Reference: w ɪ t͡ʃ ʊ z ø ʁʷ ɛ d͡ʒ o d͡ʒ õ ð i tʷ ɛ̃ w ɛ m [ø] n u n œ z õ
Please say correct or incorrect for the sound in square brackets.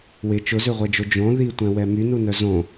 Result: incorrect